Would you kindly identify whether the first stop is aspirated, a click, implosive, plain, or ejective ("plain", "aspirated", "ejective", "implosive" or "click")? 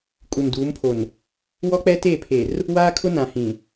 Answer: ejective